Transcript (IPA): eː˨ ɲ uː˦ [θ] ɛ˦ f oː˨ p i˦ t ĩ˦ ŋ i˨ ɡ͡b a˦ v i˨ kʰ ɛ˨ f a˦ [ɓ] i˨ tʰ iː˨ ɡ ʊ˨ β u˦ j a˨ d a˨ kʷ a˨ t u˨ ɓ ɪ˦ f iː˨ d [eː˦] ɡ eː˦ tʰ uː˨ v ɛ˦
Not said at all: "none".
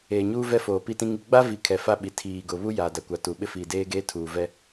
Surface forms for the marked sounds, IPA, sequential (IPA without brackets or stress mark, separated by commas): v, ɓ, eː˦